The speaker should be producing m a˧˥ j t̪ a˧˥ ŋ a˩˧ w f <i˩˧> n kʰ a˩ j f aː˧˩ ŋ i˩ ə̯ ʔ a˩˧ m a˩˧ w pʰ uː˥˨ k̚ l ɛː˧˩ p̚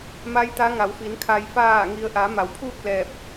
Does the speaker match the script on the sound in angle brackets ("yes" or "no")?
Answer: yes